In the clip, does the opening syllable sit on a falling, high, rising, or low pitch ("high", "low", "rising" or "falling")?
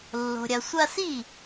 low